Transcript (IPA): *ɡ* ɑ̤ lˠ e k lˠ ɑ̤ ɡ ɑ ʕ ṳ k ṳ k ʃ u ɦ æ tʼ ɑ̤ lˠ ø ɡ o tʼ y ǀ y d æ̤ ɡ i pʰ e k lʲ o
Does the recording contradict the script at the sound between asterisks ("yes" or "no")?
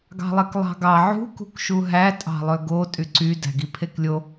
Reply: no